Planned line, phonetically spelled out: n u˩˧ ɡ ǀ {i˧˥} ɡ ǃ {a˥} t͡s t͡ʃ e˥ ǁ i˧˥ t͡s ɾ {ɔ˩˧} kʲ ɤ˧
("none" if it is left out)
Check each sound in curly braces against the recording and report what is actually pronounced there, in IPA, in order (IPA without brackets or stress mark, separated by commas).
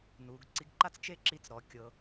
i˧˥, a˥, ɔ˩˧